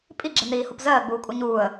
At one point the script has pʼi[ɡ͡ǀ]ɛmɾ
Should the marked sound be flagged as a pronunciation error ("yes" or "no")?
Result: yes